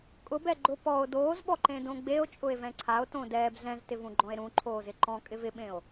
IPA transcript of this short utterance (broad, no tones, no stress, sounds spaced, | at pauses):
kʼ ʊ b ɛ ɡ͡ǃ ʊ p ɔ o̯ d oː z ɓ ɔ ǃ ẽ d õ ɡ͡b e o̯ t͡ʃʼ ʊ e̯ v ɛ̃ ǀʰ a o̯ t õ d ɛː b z ɛ̃ z t ɪ v ũ ɡ͡ǃ ɔ̃ e̯ ɾ ũ ǃʰ oː z ɪ ǃ ɔ̃ kʼ ɪ v ɪ ɓ ẽ o̯